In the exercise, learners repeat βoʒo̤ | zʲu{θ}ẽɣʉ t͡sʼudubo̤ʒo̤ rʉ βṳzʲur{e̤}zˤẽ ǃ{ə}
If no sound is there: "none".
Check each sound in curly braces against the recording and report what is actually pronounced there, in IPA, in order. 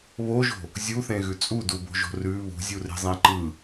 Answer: θ, e̤, ɯ

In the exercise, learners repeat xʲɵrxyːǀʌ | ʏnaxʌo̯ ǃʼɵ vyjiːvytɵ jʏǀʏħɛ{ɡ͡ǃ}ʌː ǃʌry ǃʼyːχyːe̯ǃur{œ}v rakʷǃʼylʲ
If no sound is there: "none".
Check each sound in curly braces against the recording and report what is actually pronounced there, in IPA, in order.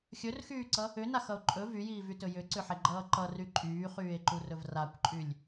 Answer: ɡ͡ǃ, ɵ

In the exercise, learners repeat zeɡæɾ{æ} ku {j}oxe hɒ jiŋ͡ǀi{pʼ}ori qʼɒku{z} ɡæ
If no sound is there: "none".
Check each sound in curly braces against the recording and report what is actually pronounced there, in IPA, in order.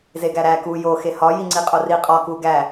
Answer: æ, j, qʼ, none

